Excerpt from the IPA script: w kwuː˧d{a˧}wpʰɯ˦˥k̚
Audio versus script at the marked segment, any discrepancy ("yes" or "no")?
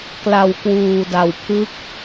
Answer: no